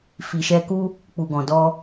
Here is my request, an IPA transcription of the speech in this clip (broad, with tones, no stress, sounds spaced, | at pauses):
f i˨ ʃ ɛ˧ k u˦ | k͡p u˨ ɡ ɔ̃˨ d ɔ˧